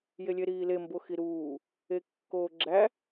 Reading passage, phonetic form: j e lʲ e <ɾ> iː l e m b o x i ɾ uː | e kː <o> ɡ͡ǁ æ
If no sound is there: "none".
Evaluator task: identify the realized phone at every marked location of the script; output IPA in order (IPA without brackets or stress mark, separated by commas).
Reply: ɾ, oː